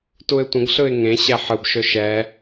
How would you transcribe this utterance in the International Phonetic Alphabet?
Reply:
t u ɪ̯ tʷ ə̃ ɡ ɬ ɯ ɪ̯ ŋ ẽ ɕ ɛ ħ ɯ b ʃ ɵ ʃ ɛ

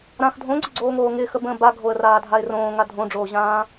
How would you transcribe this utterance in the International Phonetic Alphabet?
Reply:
ɾ ã x dʱ õ ɡ͡ǀ ɪ ɡ͡ǀ oː ŋ oː ŋ ɪː x ə b ə̃ː b a ɡʱ o ə̯ r aː dʱ a ɪ̯ r õː ŋ a dʱ õ ɖ͡ʐ oː ʑ ãː

